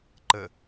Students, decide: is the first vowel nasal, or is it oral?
oral